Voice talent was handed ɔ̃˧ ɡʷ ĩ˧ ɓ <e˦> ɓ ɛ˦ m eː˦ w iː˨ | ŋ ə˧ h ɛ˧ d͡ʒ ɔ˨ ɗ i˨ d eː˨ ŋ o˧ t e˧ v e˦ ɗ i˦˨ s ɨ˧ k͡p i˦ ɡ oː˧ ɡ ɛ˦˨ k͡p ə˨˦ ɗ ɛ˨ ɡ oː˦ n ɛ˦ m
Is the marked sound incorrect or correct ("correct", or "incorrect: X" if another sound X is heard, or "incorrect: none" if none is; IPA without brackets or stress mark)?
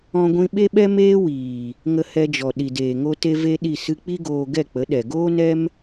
correct